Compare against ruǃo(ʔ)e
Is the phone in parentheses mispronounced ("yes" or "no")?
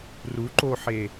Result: yes